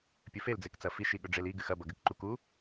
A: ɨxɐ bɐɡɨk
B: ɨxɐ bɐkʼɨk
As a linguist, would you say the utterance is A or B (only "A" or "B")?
A